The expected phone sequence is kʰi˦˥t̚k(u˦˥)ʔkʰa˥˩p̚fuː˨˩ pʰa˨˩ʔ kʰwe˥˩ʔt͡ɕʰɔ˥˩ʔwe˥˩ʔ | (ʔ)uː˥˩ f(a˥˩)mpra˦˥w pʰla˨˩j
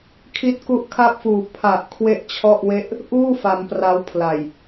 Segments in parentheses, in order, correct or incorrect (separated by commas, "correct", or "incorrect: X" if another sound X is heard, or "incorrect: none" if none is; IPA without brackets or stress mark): correct, correct, incorrect: a˧